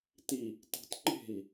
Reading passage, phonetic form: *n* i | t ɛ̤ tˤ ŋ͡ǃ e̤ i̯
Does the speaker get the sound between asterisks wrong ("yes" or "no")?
yes